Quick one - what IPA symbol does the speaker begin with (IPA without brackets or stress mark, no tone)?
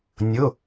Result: nʲ